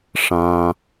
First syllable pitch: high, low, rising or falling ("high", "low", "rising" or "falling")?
low